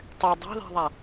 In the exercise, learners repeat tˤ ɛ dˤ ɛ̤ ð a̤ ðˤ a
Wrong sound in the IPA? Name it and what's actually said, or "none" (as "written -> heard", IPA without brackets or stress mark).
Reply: none